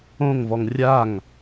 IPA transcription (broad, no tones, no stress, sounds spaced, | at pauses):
õ ŋ v ɔ ŋ rʲ a ŋ